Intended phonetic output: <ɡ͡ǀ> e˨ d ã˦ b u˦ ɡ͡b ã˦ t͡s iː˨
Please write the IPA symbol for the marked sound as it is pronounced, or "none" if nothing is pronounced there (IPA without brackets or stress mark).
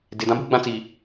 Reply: d